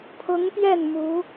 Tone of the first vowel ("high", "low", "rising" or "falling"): rising